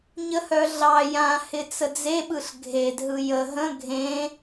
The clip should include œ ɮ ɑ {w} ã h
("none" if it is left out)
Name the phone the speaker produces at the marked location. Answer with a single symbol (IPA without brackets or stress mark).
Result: j